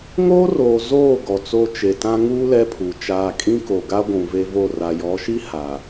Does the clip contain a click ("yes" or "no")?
no